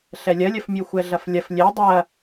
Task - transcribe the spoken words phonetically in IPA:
ɬ ɛ lʲ ɐ lʲ ɐ f mʲ u xʷ ɛ ɮ ɐ f lʲ ɐ f lʲ e dˤ ɐ

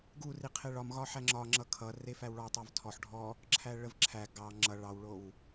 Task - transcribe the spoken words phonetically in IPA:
ɡ u r i qʰ e ɭ ɒ m ɣ ɒ ħ æ ŋ͡ǁ ɒ ŋ͡ǁ ʌ kʰ ʌ r e f æ w ɭ ɒ tˤ ɑ v tʰ ɔ ħ ɖʱ ɔ | ǁʰ æ ɭ ə v ǁʰ æ ɡ ɑ ŋ͡ǁ ʌ ɭ ɑ w ɭ o w

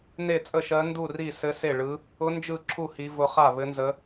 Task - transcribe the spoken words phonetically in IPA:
n e˥˩ t͡sʼ ə˥˩ ʃ ɜ˧˥ n d u˥˩ r i˥˩ s ɘ˧˥ s e˥˩ ɭ ɯ˧˥ | ʊ˧˥ n d͡ʒ ɯ˥˩ ǁʰ u˥˩ h i˧˥ v ʊ˧˥ χ a˥˩ β ɘ˧˥ n z ə˧˥

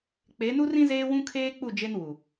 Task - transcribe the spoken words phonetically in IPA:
k͡p e˨˦ n u˦ r ĩ˦ z eː˦ w ũ˦ kʰ eː˦ k͡p u˦˨ d͡ʒ e˦ n w u˨

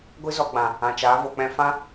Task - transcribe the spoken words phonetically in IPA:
ɡʷ ɨ˦ z ɔ˧ ɡ͡b ã˨ | ã˨ t͡ʃ aː˨˦ v o˨ k͡p ɛ̃˦ f ã˦

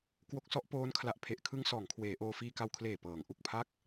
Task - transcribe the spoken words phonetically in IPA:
k w o˦˥ k̚ s ɔ˦˥ ʔ p oː˦˥ n kʰ l a˨˩ ʔ pʰ e˨˩ ʔ kʰ ɯ˧ ŋ s ɔː˩˦ ŋ kʰ w eː˩˦ ʔ oː˧ f iː˧ k a˧ w kʰ l eː˨˩ p ɤː˩˦ ŋ ʔ u˨˩ k̚ pʰ a˥˩ k̚

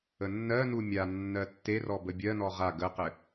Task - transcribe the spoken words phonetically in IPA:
ə nː ɜ n u mʲ a nː ɜ tː e r ɔ b ə bʲ ɜ n ɔ ʁ a ɡ ə q ɘ

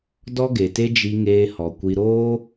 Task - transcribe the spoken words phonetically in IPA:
d ɔ˦ ɡ e˨ t e˦ d͡ʒ i˧ ŋ eː˧ h ɔ˨ kʷ i˧ ɾ oː˦

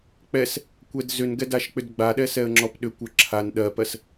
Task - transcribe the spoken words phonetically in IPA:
k͡p ɛ s | kʷ ɛ d z ʏ n ɡ ɛ d a ʃ k͡p ʏ d ɡ͡b a ɗ ɛ s ɛ ə̯ ŋ͡ǁ ɔ p ɗ ʏ kʷ ɜ ǁʰ a n ɗ ɜ p ɜ s

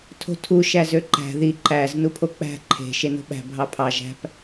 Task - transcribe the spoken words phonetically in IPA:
tʰ o̤ tʰ u ʃ æ z ø ǃ æ̤ ð i ǃ æ z n u pʰ o k͡p æ̤ ǃʰ e̤ ʃ e n o̤ ɓ æ̤ bʱ ɑ pʰ ɑ ʒ æ̤ p

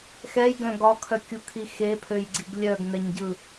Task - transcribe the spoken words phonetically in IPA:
x ɛ j ɡ œ̃ ɡ ɒ kʰ œ kʲ u kʰ i x e pʰ ø j ɡ͡ǀ i ɡ lʲ œ ɡ n ɛ ɲ ɟ ɯ

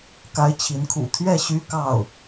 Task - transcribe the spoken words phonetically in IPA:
k a˧˥ ɪ̯ t͡ɕʰ i˧˥ n kʰ ṵ˨˩ t̪ʰ ɥ ɛ˥˩ ɕ y˥ k ɑ˥˩ ʊ̯

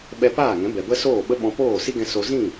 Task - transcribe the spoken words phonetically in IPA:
ɓ ɛ˧ p aː˦˨ ŋ ɛ̃˨˦ b ɛ˨ b ə˦ s oː˦˨ ɓ ə˦ ɓ ɔ̃˧ p oː˦˨ s i˦ ɡ ɛ̃˧ s o˧ z ĩ˦˨

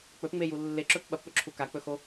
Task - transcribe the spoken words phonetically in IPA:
k͡p ɵ p ŋ͡m e j u lː e ǁ ɵ p ɓ ɐ p ɓ ɵ ǁʰ u k a k͡p ɵ x o

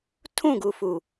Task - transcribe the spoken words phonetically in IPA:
tʰ ũ˦˨ ɡ u˨ f u˨

